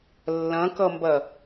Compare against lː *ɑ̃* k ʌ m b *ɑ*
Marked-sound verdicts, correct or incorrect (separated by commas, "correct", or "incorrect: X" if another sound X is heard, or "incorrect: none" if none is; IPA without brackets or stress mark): incorrect: ɐ̃, incorrect: ɐ